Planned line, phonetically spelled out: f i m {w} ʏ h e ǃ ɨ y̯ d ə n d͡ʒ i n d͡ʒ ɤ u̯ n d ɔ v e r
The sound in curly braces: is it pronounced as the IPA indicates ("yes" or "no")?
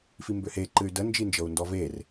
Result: no